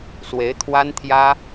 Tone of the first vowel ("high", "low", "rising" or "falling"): rising